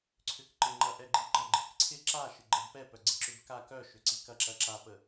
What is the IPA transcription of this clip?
ǀʰ ʏ k ǃ ɪ ŋ͡ǃ ɐ ʔ ɛ ɡ͡ǃ i ɡ͡ǃ ɐ ɡ͡ǃ i k ǀʰ ɪ ǁ a ʃ ɪ ɡ͡ǃ ɛ b p ɛ p œ ɡ͡ǀ ɪ ǁ ʏ b k a k œ ʃ ʏ ǀ i k ɐ ǁ ɐ ǁ a p ə

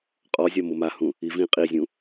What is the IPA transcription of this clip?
qʼ ɔ zʲ ɒ m ʊ m a h ũ | i v ĩ qʼ i zʲ ũ

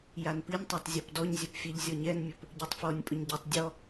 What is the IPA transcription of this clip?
j a n p i nʲ tˤ a tˤ zʲ ɔ p d ɔ ɲ zʲ œ p fʲ ɛ ʎ zʲ ɔ ɲ ɛ n mʲ ɵ p | ɟ œ tˤ f ɔ nʲ pʼ ɵ ɲ ɟ ɛ tˤ dʲ ɔ

